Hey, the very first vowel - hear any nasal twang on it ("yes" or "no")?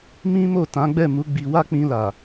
yes